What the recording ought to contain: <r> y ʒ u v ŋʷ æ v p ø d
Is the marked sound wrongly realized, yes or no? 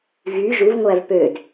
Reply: yes